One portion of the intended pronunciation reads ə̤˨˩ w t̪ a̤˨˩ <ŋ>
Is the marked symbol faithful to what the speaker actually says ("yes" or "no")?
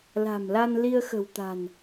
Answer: no